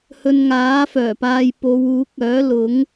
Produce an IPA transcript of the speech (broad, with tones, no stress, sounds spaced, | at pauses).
h ɵ˧ n ŋ aː˨˥ f œː˨˩ p aː˧ j p o˨˧ w uː˨˥ k̚ œː˨˥ l ʊ˨˥ ŋ